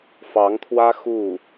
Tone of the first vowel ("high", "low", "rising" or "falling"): rising